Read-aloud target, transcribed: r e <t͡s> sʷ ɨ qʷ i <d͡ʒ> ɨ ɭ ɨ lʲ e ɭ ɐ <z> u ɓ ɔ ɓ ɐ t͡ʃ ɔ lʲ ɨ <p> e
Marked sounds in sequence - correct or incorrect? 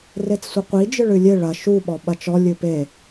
correct, correct, incorrect: ʃ, correct

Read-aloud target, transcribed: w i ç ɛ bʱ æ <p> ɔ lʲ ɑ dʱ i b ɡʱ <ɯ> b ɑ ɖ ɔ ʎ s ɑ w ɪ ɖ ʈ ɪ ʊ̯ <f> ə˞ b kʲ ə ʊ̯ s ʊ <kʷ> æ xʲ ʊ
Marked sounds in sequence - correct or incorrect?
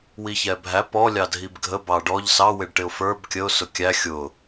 correct, incorrect: ə, correct, incorrect: kʲ

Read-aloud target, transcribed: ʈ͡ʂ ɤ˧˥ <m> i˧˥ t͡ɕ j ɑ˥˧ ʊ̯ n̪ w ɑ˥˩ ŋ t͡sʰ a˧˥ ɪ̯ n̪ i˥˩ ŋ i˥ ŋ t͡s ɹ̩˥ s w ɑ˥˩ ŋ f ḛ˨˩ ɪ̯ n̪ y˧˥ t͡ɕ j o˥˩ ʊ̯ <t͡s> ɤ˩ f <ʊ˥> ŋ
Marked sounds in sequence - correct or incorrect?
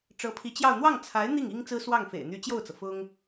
incorrect: pʰ, correct, correct

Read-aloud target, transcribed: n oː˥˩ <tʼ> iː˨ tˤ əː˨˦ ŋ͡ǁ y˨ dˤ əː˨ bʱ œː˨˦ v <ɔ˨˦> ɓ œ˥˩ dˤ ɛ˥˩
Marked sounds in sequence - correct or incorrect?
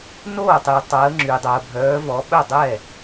incorrect: tˤ, correct

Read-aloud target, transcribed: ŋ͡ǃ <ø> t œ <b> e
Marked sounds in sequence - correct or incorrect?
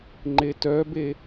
incorrect: e, correct

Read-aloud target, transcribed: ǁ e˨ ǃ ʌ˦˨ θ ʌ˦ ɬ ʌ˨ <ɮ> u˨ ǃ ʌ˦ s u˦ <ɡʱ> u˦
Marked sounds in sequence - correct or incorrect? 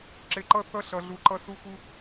correct, incorrect: x

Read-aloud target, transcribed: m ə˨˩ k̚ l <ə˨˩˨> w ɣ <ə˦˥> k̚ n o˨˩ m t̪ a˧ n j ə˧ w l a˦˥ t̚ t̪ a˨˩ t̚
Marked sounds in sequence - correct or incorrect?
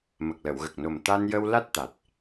correct, incorrect: ə˨˩

